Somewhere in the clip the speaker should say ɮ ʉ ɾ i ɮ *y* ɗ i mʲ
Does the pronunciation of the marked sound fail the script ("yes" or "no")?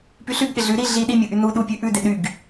yes